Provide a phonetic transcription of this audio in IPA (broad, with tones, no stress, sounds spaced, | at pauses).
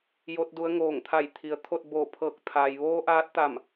j o˧˥ t̚ d u˧˥ ə̯ ŋ oː˧˩ ŋ t̪ʰ a˧˩ j t̪ʰ i˩ ə̯ t̪ʰ o˥˨ t̚ b o˧˩ pʰ ɤː˧˩ k̚ t̪ʰ a˩ j ʋ oː˧˥ ʔ aː˧˥ t̚ t̪ a˧˩ m